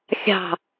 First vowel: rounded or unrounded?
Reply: unrounded